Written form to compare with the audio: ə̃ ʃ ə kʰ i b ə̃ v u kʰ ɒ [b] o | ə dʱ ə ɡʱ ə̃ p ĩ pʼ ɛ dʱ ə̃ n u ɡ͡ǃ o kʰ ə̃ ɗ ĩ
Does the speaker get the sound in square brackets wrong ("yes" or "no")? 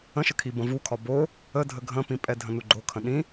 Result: no